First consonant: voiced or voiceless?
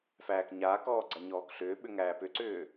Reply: voiceless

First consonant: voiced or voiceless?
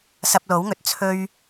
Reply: voiceless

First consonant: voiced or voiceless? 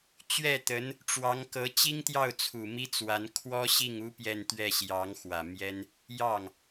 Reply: voiceless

